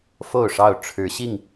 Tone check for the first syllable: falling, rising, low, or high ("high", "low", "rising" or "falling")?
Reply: falling